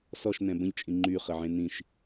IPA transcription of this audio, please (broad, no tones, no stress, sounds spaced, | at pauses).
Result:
s ɔ ʃ n ɛ̃ b ə̃ ʎ t͡ʃʼ ĩ ŋ͡ǃ y χ ə ʕ ẽ n ĩ ʃ